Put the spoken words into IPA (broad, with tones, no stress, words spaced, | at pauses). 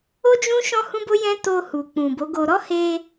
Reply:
o˦ d͡ʒũ˦ ʃɔ̃˦hũ˦bo˦jɛ̃˦ to˧hu˨ k͡pũ˨ bo˨˦ɡo˧ ɾɔ˦he˧